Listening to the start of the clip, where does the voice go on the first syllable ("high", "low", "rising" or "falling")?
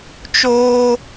high